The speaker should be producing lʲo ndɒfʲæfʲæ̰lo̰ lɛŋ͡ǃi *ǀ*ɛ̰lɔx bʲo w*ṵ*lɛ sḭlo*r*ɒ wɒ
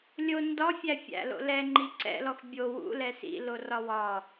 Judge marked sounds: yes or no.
yes, yes, yes

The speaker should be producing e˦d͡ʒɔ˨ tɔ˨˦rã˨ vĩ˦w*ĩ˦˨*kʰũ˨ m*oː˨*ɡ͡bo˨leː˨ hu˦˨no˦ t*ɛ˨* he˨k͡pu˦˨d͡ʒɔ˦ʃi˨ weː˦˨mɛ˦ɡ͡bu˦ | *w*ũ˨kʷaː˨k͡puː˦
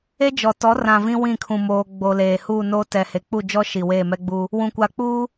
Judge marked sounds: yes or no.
yes, yes, yes, yes

